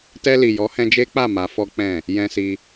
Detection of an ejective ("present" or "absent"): absent